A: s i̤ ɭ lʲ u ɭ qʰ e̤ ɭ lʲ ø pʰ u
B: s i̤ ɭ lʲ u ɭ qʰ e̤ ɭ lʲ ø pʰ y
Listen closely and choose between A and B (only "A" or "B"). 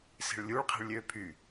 B